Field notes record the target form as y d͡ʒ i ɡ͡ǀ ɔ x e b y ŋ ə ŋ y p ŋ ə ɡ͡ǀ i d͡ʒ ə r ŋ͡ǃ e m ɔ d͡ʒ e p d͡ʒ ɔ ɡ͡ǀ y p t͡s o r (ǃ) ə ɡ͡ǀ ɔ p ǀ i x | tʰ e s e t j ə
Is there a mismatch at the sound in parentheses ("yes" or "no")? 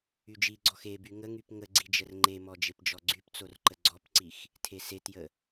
no